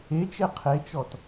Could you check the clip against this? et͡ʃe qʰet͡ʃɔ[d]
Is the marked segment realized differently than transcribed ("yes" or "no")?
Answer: yes